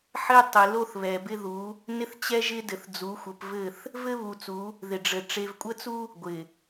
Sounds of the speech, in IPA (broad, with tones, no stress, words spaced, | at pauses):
ħɘ˦ tˤɪ˨lo˦θ βɛ˨bɪ˦ðu˨˦ | nɪ˦θt͡ɕɛ˦ʒɪ˦ dɘ˨θd͡zu˨˦xʷə˨˦p vɘ˦˨θ | vɘ˦βu˨t͡su˨˦ | ðɪ˨ɖ͡ʐɘ˨ ʈ͡ʂe˨vkʷʼə˦t͡su˦ | ɡʷɪ˨